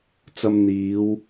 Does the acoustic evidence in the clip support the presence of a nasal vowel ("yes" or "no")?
no